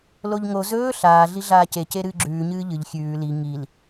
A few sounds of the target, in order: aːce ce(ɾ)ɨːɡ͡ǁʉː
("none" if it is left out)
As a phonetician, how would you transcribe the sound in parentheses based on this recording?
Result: ɾ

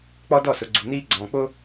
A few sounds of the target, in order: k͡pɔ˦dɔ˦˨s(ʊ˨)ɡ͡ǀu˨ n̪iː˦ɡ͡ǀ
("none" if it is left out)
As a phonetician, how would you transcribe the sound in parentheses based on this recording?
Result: ʊ˨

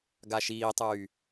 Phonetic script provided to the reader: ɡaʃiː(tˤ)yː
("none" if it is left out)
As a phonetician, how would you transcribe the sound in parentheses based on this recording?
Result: tˤ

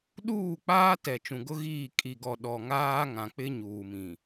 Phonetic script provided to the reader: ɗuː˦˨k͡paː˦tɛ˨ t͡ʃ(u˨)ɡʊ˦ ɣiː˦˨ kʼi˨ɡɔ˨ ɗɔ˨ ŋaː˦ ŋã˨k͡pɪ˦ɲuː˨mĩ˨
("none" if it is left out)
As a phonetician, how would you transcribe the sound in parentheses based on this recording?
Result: ũ˨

